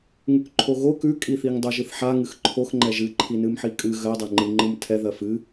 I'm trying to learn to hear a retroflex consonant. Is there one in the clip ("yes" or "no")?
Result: no